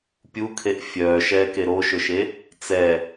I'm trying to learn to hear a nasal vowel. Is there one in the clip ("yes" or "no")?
no